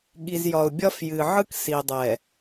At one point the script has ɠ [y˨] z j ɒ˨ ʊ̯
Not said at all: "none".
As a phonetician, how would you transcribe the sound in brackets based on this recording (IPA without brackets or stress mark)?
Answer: i˨